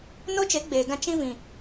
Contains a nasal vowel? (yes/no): yes